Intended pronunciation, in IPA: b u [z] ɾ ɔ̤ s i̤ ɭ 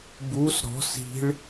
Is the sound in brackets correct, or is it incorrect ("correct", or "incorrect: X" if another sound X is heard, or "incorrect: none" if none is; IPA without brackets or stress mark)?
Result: incorrect: s